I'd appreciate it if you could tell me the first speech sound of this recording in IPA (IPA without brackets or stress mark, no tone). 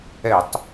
ɛ